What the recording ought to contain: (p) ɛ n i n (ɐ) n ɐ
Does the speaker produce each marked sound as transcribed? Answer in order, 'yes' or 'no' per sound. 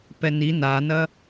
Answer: yes, no

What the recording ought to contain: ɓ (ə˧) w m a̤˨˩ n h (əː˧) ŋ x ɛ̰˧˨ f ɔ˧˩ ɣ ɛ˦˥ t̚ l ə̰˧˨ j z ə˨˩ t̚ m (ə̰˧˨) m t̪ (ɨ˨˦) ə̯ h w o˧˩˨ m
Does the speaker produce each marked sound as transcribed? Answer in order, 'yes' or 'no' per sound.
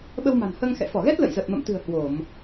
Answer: yes, yes, yes, no

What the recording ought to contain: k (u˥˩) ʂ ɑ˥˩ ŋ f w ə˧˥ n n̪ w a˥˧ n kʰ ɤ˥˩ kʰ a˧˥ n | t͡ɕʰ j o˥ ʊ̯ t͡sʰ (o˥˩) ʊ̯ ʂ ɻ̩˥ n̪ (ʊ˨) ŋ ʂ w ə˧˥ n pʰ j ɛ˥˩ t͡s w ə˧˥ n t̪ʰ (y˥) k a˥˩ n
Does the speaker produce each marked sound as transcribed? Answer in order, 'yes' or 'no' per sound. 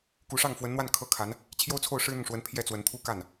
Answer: no, yes, yes, no

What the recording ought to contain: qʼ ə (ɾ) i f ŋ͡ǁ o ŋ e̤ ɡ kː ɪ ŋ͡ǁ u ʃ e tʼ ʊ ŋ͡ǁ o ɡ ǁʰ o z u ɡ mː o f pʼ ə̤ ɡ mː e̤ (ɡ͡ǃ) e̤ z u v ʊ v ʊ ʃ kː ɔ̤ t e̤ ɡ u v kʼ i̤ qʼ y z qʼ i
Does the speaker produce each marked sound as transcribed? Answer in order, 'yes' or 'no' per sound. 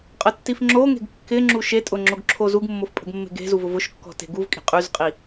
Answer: no, no

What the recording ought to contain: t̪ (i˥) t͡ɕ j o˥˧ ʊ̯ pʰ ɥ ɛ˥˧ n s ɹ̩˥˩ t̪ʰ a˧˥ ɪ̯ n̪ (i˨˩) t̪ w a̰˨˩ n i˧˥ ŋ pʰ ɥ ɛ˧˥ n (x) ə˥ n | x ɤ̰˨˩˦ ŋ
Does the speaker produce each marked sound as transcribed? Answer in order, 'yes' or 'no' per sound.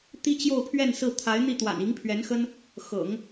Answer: yes, no, yes

